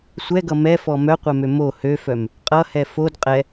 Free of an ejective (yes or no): no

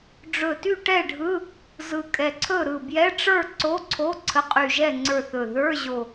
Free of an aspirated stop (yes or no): no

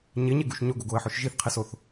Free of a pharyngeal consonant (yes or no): no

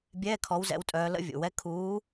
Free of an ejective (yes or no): no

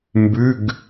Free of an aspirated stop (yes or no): yes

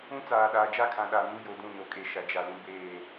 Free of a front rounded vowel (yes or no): yes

